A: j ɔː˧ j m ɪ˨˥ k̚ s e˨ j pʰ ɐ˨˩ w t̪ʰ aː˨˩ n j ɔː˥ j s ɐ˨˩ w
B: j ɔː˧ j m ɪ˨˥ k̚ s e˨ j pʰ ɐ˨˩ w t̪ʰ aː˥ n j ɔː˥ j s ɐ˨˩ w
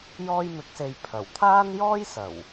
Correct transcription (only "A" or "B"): B